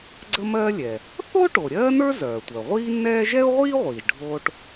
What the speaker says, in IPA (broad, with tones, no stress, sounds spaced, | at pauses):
ɡ͡ǀ ə˥ m ɜː˥ lʲ ɛ˩ | θ o˥ ʈ o˩ ɾʲ ɜː˥ n ə˞˥ z œː˩ tʷ œ˩ ʁʷ iː˥ nː ɛː˥ ʒ ɛ˥ ʊ̯ ʁʷ iː˥ ʁʷ iː˩ ʒ ɖʱ oː˥ ʈ